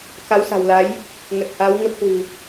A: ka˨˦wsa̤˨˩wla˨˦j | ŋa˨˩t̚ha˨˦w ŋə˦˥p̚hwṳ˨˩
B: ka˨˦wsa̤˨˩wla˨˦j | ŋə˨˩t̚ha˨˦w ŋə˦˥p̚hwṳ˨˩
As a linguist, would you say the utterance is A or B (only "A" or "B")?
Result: B